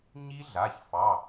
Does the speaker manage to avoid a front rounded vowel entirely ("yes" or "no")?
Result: yes